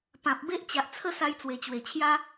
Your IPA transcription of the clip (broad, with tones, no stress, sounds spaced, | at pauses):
p ã˨ p̚ b e˦ ʔ t͡ɕ a˨ ʔ t͡sʰ ə˥˧ s a˧ j t͡s w e˨˩ t͡ɕ w e˨˩ t͡ɕʰ j a˦